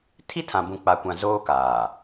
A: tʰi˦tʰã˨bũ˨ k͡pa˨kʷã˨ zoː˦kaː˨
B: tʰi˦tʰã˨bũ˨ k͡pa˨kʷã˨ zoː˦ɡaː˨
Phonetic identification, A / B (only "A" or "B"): A